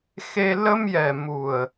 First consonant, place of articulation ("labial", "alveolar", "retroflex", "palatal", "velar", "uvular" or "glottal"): velar